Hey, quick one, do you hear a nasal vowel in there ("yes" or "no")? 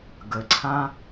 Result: yes